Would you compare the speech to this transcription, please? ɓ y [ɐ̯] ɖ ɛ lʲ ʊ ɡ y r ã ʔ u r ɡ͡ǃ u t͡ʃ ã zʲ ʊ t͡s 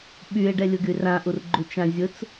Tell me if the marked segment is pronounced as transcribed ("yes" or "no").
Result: no